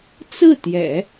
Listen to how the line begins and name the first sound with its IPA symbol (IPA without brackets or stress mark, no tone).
t͡s